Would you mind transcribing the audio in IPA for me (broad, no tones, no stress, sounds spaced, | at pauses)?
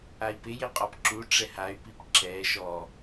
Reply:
a i̯ p ɪ j ɪ qʼ ɔ p ǁ u ʈ͡ʂ ɛ h a y̯ p i p ǁ ɛ ʃ ɔ